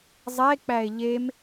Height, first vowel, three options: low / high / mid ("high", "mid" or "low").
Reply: mid